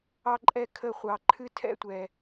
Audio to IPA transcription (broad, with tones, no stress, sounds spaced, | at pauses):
ɑ˦ ǃʼ ɛ˦ kʰ ə˦˨ χʷ ɑ˨ ǃʰ ɨ˦ tʰ ɛ̰˦˨ tʷ ɛ˨